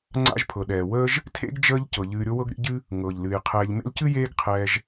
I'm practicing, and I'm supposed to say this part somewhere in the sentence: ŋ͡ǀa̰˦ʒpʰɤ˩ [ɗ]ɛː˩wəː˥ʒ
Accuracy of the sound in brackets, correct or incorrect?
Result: correct